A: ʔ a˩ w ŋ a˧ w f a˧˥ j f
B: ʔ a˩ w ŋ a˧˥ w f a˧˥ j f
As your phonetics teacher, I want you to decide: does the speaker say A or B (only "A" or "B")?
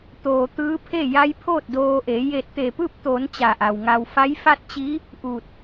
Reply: A